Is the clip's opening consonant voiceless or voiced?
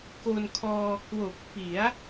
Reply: voiceless